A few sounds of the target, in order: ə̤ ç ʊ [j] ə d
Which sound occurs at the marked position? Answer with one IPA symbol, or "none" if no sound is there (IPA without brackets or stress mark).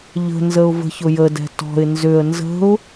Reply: j